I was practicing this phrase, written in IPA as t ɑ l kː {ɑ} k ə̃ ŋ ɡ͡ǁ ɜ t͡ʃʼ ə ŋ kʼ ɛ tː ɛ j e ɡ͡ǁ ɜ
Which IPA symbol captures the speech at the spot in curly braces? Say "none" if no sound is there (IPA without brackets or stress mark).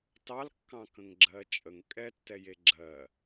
ɑ̃